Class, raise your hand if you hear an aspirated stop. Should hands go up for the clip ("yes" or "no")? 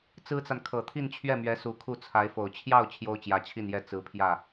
yes